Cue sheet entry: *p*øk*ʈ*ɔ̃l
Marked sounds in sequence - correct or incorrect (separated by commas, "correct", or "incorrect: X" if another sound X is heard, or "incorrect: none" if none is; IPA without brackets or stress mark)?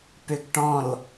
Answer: correct, correct